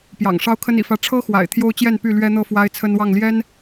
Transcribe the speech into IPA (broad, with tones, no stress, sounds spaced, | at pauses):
p j ɑ̰˨˩ ŋ ʂ ɑ˦ ʊ̯ kʰ ə˦ n ḭ˨˩ f ä˦ ʈ͡ʂʰ ɤ˦ x w a̰˨˩ ɪ̯ t̪ʰ j o˦ ʊ̯ t͡ɕ j ɛ˥˨ n p y˥˨ l ɥ ɛ˦ n̪ ɤ˥˨ f w a˦ ɪ̯ t͡sʰ ə˦ n w ɑ˥˨ ŋ l j ɛ˦ n